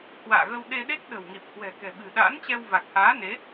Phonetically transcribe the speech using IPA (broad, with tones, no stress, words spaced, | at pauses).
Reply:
hwa̰ː˧˨ɣə˧w ɗe˧ɗe˦˥k̚ ɗə̤˨˩wŋi˨˩p̚hwɛ̤˨˩ kɛ̤˨˩ɓɨ̤˨˩ɗa̰ː˧˥nt͡ɕɛ˧w va˨˩k̚haː˨˦ne˨˦